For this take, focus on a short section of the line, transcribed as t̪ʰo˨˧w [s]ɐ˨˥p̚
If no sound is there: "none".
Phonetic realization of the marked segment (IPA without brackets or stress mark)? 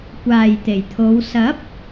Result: s